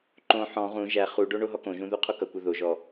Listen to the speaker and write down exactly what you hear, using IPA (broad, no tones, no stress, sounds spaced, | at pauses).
ǃ õ ħ ɔ̃ ʁ ũ ʒ æ χ u ɖ o ɳ o ɦ ɔ k õ ʒ ũ ð u qʰ o k ʌ kʷ ʌ ð o ʒ ɔ